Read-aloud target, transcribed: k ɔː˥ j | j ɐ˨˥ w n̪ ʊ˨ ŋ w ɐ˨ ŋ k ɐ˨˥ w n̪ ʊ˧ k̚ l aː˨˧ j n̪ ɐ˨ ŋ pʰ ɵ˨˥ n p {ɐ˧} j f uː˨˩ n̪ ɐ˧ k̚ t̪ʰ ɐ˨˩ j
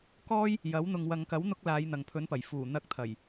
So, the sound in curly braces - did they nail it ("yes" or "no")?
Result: no